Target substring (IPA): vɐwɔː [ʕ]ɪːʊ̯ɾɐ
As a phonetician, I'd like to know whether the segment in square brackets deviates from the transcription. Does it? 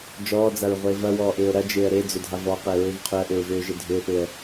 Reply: yes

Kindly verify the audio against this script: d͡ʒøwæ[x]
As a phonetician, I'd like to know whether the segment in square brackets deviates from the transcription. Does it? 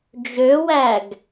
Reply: yes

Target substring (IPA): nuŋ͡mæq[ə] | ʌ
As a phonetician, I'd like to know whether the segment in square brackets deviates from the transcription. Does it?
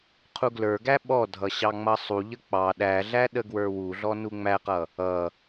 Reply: yes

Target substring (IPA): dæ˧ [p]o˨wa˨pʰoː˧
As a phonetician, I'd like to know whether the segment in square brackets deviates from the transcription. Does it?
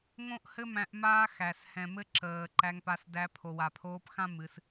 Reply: yes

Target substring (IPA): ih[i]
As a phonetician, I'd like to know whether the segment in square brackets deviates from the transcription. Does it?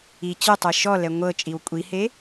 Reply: yes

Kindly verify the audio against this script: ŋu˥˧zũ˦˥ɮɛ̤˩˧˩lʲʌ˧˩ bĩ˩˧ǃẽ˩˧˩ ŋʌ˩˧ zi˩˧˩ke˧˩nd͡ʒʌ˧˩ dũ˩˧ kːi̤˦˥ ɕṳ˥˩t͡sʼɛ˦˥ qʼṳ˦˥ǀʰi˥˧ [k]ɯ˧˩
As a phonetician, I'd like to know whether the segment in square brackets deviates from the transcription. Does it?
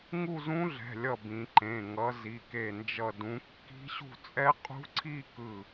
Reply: no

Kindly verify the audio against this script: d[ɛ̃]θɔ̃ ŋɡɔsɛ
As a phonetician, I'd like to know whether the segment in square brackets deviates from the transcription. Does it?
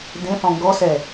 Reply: yes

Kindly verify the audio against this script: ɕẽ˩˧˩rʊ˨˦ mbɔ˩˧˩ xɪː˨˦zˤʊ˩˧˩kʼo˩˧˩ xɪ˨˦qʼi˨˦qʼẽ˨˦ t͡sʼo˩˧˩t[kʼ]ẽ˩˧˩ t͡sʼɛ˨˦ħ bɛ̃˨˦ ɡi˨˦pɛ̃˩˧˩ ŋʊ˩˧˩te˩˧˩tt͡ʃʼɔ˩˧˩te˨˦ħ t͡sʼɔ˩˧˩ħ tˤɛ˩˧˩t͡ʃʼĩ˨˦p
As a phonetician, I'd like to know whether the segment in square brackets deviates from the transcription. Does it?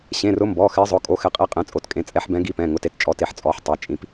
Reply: no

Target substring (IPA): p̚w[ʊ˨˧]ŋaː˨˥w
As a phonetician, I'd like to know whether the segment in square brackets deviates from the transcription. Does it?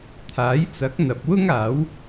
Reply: yes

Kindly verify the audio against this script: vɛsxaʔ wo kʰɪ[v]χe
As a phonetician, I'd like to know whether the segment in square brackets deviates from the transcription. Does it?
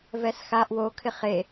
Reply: yes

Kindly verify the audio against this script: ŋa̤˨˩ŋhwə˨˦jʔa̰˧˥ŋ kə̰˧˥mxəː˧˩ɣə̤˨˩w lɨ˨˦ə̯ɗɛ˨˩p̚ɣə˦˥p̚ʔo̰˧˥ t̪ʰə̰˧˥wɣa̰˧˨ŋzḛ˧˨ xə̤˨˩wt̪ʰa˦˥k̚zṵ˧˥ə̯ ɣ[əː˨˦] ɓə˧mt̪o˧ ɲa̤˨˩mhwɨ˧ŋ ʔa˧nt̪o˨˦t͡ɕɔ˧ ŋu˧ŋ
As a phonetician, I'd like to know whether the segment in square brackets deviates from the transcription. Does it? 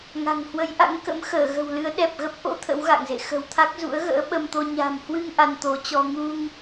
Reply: yes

